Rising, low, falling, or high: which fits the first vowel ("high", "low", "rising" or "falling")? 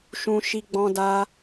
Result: high